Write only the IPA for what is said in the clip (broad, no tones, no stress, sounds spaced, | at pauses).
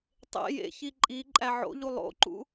tˤ ḛ j ḛ ç i ǃʼ i ǃʼ æ ʕ o̰ ʎ u lˠ o̰ ǃ ṵ